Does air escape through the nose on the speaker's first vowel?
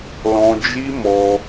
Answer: yes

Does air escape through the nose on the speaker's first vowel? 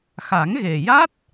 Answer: no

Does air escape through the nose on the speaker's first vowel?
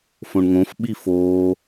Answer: yes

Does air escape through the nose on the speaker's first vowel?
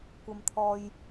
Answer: no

